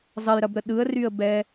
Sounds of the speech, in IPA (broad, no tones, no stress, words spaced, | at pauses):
zˤəjɾɐbɾə ɗɯə̯ryə̯bɛ